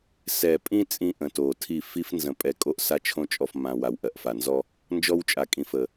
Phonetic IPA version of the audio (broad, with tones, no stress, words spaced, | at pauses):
sɛ˨ pʼĩ˦ t͡sʼĩ˦ʔə̃˨to˨tʰi˦˨ fi˦f nzə̃˨pʼɛ˨ kʼo˦ʔsa˦t͡ʃʰõ˦ t͡ʃʼɔ˨fmã˨ wa˨wʔɜ˨ʔfa˨nzɔ˦ | nd͡ʒɔ˦wt͡ʃʼa˨kʼĩ˨fə˨